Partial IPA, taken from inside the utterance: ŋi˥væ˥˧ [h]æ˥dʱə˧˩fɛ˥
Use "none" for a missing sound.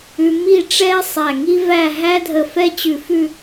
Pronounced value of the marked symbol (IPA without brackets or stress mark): ɦ